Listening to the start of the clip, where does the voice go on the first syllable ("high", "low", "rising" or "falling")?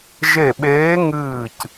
falling